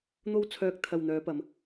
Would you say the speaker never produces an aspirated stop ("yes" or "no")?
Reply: no